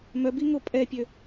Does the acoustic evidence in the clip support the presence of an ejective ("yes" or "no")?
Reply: yes